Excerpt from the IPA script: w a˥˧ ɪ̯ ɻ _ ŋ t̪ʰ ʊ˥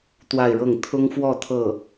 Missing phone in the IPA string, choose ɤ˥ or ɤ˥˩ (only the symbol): ɤ˥˩